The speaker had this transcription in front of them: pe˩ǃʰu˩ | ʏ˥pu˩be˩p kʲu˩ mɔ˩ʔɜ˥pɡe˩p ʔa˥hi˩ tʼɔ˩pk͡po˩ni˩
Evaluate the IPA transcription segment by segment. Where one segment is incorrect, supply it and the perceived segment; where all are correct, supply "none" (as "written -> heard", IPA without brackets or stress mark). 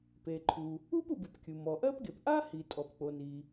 ʏ˥ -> u˥